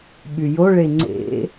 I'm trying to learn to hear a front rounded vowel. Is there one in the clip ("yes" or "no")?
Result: yes